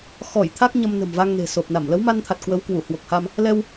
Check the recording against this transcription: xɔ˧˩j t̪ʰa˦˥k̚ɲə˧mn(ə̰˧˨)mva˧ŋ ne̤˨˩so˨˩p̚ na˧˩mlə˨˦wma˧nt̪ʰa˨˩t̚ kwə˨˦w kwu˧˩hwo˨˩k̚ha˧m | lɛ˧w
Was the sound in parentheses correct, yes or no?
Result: no